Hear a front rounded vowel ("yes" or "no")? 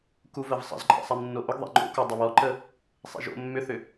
yes